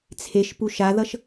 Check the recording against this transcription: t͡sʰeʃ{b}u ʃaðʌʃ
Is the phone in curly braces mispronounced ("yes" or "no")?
yes